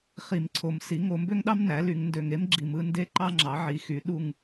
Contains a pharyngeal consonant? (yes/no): yes